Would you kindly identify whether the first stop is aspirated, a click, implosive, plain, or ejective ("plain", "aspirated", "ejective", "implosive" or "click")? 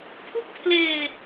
aspirated